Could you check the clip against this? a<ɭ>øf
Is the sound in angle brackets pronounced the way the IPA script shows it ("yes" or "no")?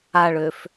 yes